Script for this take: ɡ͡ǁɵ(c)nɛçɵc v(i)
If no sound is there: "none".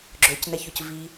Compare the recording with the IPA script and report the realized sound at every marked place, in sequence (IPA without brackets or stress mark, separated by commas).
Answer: c, i